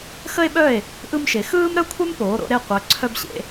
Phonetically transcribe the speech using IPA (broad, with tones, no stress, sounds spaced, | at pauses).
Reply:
x ə˧ e̯ ɓ œ˧˩ e̯ | ʔ ɯ˧ m ʃ e˩˧ x ɯː˥ m ɾ œ˥ kʷʰ œ˥ m p oː˩˧ ɾ o̰˧ ɾ e˧˩ qʷ œ˩˧ ǀʰ œ˧ b ɕ ḛ˧